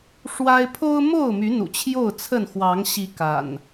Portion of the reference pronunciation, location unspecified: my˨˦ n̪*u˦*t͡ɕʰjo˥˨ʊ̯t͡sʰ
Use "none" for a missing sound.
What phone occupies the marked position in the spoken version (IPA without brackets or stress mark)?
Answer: ṵ˨˩